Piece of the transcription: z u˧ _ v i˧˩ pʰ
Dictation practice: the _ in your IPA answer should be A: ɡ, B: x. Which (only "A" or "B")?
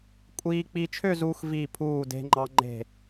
B